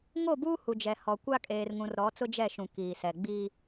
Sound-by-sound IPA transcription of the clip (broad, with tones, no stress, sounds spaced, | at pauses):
ŋ o˦˨ b uː˦ h u˨ d͡ʒ ɛ˨ h ɔ˨ kʷ a˦ kʼ eː˨ r ŋ ũ˨ r ɾ ɔ˨˦ t͡s ʊ˦ d͡ʒ ɛ˦˨ ʃ ũ˨ k iː˨ s ɛ˨ ɡ͡b iː˦